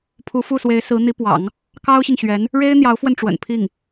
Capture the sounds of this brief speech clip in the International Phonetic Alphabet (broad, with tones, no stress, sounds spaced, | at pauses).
pʰ u˧˥ f u˥˩ s w e˧˥ ɪ̯ s ɹ̩˧˥ n̪ i˧˥ p w ɑ̰˨˩˦ ŋ | k ɑ˥ ʊ̯ ɕ i˨ ŋ ɕ ɥ ɛ˧˥ n | ɻ e˥ ɪ̯ n̪ j ɑ˧˥ ʊ̯ f w ə˧ n ʈ͡ʂ w ə̰˨˩ n pʰ i˥˩ ŋ